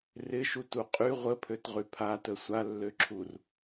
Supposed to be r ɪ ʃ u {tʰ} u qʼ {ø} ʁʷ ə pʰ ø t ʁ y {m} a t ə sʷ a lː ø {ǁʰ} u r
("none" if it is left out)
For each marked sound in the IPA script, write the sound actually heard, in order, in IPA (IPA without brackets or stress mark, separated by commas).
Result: t, y, pʰ, ǁʰ